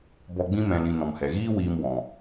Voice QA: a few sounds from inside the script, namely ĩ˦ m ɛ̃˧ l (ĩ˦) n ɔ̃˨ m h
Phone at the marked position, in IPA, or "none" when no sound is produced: ĩ˧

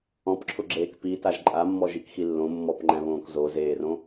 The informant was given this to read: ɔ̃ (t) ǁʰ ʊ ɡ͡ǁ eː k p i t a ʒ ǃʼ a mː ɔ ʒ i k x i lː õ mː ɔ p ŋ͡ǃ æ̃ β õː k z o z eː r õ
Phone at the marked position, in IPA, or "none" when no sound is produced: p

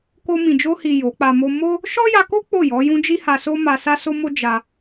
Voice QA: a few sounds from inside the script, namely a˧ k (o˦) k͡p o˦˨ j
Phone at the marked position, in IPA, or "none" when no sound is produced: o˦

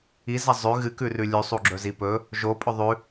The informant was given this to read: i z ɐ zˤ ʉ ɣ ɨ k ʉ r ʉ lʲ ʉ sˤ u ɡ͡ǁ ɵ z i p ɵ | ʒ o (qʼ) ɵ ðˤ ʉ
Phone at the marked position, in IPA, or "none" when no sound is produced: pʼ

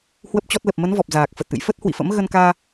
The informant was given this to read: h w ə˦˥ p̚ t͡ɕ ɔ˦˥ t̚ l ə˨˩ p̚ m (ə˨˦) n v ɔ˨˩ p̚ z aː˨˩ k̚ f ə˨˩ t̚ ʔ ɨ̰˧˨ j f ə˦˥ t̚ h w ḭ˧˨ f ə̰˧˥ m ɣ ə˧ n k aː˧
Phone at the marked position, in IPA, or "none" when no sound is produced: ə˨˦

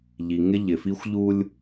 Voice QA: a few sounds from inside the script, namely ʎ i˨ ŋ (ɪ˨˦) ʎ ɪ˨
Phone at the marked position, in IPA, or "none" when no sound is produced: ɪ˦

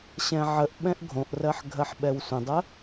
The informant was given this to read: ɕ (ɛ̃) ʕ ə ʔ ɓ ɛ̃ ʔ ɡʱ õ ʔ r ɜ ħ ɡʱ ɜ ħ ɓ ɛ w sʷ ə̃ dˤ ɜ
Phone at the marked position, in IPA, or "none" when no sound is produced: ɛ̃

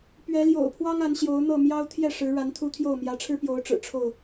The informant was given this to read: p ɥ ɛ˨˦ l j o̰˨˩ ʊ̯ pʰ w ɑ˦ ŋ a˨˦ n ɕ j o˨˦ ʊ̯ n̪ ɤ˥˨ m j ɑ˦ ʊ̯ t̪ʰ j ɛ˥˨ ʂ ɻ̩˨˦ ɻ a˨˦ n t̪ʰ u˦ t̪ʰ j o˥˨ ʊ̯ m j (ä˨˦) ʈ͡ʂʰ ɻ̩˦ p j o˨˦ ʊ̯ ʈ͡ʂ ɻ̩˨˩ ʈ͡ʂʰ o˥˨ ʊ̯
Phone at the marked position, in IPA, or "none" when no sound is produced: ä˨˦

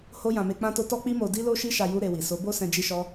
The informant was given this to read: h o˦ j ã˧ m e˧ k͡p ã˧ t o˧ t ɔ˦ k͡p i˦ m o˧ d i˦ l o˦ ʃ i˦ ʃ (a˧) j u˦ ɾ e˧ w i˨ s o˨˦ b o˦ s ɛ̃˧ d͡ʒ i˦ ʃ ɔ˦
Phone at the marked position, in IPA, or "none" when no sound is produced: a˧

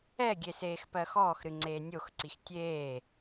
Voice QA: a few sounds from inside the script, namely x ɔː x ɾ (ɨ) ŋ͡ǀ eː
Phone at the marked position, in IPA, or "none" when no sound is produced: ɨ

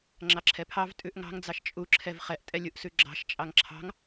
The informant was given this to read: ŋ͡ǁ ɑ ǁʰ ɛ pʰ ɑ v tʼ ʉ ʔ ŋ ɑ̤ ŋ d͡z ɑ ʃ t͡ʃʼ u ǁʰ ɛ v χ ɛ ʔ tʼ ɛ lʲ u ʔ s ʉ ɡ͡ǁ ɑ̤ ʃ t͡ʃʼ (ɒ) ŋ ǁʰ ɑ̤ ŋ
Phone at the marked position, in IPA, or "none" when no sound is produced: ɑ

